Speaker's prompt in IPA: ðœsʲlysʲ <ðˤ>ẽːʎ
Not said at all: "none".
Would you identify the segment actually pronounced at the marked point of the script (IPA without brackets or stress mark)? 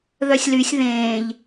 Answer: ð